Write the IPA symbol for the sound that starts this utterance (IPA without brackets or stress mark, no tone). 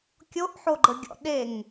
kʲ